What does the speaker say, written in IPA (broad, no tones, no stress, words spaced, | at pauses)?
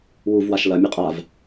wuvwaʃ lɐmʲe qʼav